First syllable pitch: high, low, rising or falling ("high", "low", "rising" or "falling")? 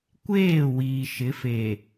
falling